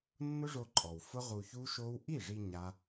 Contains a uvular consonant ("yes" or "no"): yes